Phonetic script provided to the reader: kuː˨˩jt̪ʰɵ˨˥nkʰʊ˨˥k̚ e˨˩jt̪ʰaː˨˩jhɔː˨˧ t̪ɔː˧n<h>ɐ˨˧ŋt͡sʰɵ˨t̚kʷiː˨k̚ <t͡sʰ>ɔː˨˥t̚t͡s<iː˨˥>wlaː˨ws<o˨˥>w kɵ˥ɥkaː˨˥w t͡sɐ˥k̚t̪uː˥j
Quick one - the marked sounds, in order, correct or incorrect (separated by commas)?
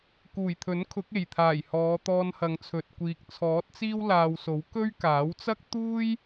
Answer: correct, correct, incorrect, correct